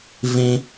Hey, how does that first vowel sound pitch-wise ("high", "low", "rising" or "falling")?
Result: high